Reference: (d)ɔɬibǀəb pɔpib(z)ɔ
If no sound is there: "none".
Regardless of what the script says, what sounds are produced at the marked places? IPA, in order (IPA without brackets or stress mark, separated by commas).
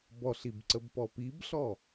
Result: b, ɬ